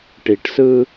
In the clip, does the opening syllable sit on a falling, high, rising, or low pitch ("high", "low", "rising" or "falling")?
low